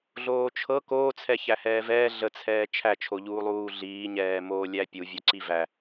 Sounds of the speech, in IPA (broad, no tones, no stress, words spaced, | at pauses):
ɮoːt͡ʃʰɤ koːt͡sʰɛ çæhɛːvɛː ɮət͡sʰɛː t͡ʃʰæt͡ʃʰoʎuːlˠuː ɮiːɲɛːmoː lʲæpʲu vʲoǀivæ